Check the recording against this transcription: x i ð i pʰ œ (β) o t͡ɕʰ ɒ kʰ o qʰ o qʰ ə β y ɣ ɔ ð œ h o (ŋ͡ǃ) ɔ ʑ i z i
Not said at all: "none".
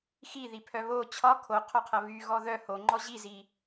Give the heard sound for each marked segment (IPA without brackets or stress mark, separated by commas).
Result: β, ŋ͡ǃ